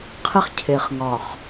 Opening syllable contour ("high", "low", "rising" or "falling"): high